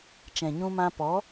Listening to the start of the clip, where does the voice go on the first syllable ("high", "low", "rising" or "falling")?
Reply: low